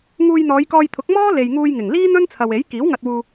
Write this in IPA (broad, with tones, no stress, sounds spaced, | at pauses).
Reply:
ŋ uː˧ j n̪ ɔː˨˧ j k ɔː˧ j t̪ʰ ʊ˨˥ k̚ m ɔː˥ l e˨ j ŋ uː˧ j ŋ ɪ˨˩ ŋ l iː˥ n̪ ɵ˥ n t͡sʰ ɐ˨ w e˨˥ j k iː˨˥ w ŋ ɐ˧ t̚ w uː˧